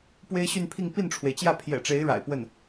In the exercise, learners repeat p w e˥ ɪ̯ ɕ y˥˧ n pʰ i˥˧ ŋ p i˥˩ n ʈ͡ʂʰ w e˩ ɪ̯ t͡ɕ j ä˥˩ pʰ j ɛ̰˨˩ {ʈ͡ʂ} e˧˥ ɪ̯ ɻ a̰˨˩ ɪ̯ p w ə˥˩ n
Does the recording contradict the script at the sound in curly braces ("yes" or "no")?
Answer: no